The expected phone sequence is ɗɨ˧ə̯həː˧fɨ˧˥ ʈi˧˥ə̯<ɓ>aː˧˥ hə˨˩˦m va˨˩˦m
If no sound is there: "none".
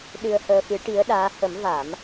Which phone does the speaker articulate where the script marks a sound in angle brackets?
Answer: ɗ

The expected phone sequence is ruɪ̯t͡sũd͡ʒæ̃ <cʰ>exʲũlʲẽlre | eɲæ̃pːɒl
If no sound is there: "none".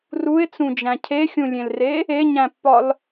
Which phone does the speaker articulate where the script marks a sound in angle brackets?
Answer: cʰ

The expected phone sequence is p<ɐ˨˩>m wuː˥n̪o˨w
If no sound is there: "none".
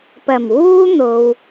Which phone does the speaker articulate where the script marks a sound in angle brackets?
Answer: ɐ˨˩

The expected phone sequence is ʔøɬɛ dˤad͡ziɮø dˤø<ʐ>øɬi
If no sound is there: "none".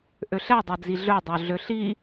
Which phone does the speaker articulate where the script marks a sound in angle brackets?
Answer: ɮ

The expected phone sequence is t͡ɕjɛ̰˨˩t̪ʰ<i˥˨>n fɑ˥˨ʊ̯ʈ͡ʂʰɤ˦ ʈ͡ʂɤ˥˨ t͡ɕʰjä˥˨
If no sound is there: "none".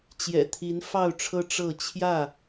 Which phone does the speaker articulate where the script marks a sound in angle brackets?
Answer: i˨˦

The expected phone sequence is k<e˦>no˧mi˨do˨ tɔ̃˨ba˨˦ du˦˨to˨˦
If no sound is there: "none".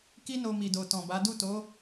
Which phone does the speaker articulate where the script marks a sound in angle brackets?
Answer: i˦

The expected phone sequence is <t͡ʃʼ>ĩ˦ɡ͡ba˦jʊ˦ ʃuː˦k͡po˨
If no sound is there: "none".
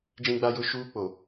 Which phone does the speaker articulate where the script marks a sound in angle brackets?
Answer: d͡ʒ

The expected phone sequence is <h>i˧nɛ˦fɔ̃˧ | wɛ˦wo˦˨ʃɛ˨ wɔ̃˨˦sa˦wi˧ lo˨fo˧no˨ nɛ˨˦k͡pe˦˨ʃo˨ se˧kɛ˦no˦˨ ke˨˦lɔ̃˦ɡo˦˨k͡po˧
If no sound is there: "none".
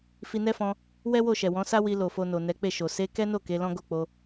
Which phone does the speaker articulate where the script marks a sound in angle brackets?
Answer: f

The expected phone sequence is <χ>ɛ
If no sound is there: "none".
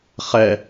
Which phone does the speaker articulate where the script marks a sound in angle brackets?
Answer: χ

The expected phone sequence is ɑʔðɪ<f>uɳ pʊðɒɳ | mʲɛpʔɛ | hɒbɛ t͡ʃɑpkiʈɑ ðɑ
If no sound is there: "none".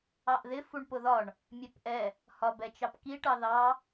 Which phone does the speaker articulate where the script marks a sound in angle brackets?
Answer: f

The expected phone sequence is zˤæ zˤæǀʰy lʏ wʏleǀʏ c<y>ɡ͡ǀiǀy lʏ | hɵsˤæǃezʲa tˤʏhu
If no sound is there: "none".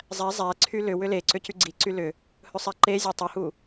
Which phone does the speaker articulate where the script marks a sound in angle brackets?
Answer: y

